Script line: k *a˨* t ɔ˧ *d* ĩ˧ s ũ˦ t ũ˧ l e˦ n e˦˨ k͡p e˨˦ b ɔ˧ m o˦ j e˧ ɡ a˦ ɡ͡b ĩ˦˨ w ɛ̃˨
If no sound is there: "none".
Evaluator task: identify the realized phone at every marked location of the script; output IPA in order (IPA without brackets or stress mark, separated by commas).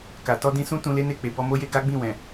a˨, d